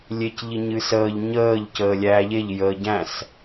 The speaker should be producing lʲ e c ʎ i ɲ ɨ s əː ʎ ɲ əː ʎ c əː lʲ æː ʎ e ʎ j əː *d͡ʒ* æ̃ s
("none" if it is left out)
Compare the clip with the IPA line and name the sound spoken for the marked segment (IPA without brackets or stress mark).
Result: ɟ